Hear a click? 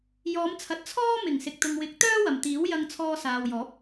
no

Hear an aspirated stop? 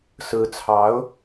yes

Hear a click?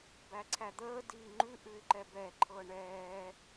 yes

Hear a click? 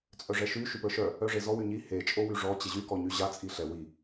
no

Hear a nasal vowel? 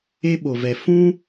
yes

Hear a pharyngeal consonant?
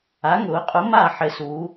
yes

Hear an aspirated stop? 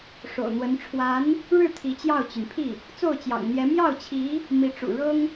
yes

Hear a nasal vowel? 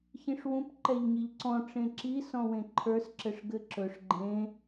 yes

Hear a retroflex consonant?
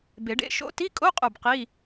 yes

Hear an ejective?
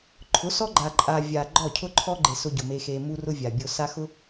yes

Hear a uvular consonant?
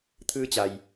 no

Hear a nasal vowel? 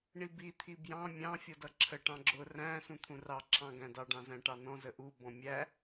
yes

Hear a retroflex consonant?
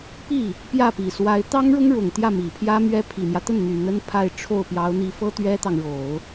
yes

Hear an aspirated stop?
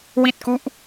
no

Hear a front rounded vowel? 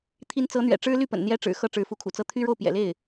yes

